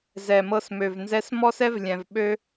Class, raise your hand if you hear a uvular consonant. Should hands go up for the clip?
no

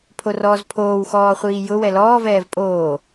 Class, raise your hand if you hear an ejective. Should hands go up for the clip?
yes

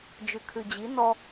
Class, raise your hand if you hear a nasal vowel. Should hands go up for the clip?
no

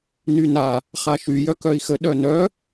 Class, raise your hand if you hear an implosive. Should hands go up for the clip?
yes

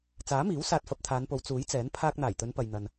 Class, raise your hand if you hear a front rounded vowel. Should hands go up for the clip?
no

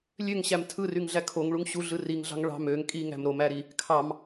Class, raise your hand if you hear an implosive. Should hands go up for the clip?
no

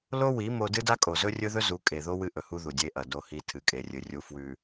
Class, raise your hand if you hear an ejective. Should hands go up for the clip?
yes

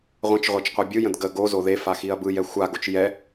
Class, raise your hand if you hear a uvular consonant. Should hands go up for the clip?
yes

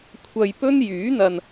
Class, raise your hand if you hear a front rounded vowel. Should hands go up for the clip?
yes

